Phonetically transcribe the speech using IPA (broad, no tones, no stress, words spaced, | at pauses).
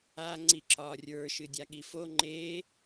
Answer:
a ŋ͡ǀiǁɒ rʲə˞ ʃɨdʲaɠifo ŋ͡ǃe